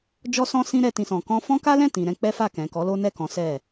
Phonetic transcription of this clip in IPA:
d͡ʒ ɔ˦ s ɔ̃˦ s ĩ˦ ɾ ɛ˦ t ĩ˦ s ɔ̃˧ k ɔ̃˦ f ɔ̃˦ k a˦ l ɛ̃˦˨ t ĩ˨ ɾ ɛ̃˧ k͡p ɛ˦ f a˦˨ k ɛ̃˨ k ɔ˨˦ l o˦ n ɛ˦˨ k ɔ̃˨˦ s ɛ˦˨

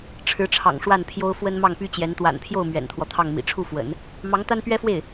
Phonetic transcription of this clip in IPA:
ʈ͡ʂʰ ɻ̩˧˥ ʈ͡ʂʰ ɑ̰˨˩ ŋ ʂ w a˥˩ n pʰ j o˥ ʊ̯ f w ə˥ n m ɑ˥˩ ŋ p y˥ t͡ɕ j ɛ˧˥ n t̪ w a̰˨˩ n pʰ j o˥˩ ʊ̯ m ɥ ɛ̰˨˩ n t̪ʰ w ɔ˦ t̪ʰ ɑ˥˩ ŋ m ḭ˨˩ ʈ͡ʂʰ u˥˩ f w ə̰˨˩˦ n | m ɑ˧˥ ŋ t̪ a˥ n p ɥ ɛ˥ f w e˥˩ ɪ̯

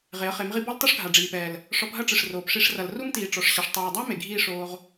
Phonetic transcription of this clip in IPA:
ʁ e˨˦ ə̯ χ e˨˦ m ʁ i˦ b ɔ˦ l tˤ u˦ ʂ ɡʱ a˨ ɖ͡ʐ iː˨ p ɛː˨ l | ʂ ɔ˧ p ɦ ɐ˦ ʈ͡ʂ ɨ˨ ʂ r oː˨ p ʂ i˧ ʂ r ɐ˨ l r u˦ m t iː˨ ʈ͡ʂ ɔ˨ ʂ ɕ ɐ˨ ʂ tˤ oː˨ dˤ a˦ m e˨ ɡʱ iː˦ ʂ oː˧ ʁ

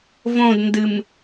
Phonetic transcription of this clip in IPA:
v õ d n d ɨ m

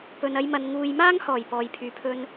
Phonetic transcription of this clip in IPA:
p ɵ˨ n ɐ˧ j m ɐ˨ n ŋ uː˨ j m aː˥ ŋ h ɔː˨˩ j p ɔː˨ j pʰ yː˨ pʰ ɵ˥ n

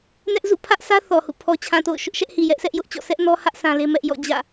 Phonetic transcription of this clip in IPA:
n ɛ˦ ʔ z ṵ˦˨ pʰ ä˦ ʔ s ä˦ θ ɔ˨ h ṵ˦˨ pʰ ɔ˨ t͡ɕʰ ã˨ t o̰˦˨ ʊ̯ ʃ ʊ˦ ʔ ʃ ɛ˦ ʔ h i˨ j ɛ˦ ʔ sʰ ɛ˦ ʔ j ʊ˦ ʔ t͡ɕ ɔ̰˦˨ s ɛ˦ ʔ n ɔ˦ h ä˦ ʔ s ã˦ l e˦ m ɛ˦ ʔ j ɔ̰˦˨ d͡ʑ ä̰˦˨

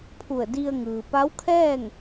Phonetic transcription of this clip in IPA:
pʰ u˧˩ ə̯ d i˧ ə̯ ŋ ɯː˩ p a˧˥ w kʰ ɛː˥˨ ŋ

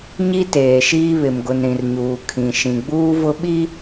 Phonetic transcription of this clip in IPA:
ɲ i˦ t eː˨ ʃ iː˦ β ɪ˨ m ɡ ʊ˨ n ɾ ĩ˨ r ɲ uː˨ kʰ ĩ˨ ʃ ĩ˨ ɡ͡b uː˦ v ʊ˦ ɓ i˦

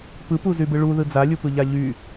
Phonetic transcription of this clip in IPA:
p ɯ p u z y b ɯ ɭ u ð ɯ d͡z a lʲ u p ɯ ʎ a ʎ y

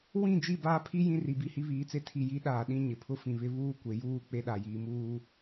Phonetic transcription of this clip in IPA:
w ĩ˦˨ d͡ʒ i˦˨ b aː˦ pʰ i˦ j ĩ˦ r i˨ b i˦˨ h i˦ β iː˨˦ t͡s e˦ tʰ i˨ j i˨˦ ɗ aː˨ ɗ ĩ˦ ɲ ɪ˨ pʰ ʊ˦ f ĩ˨ β ɪ˦ β uː˦ kʷ e˨ j uː˦˨ k͡p e˦ ɗ a˨ j iː˨ m uː˦

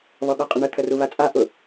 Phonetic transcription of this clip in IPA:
β ɔ ɠ ɔ qʼ ə ɳ ə t̪ʰ ə r u β a t͡sʼ a ʔ ʊ

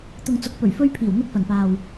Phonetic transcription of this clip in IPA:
t̪ ʊ˨ ŋ t͡s ʊ˨˥ k̚ p ɵ˨˩ ɥ f ɵ˧ ɥ pʰ iː˨˩ w n̪ ʊ˧ k̚ f ɐ˨˩ n p aː˨ w

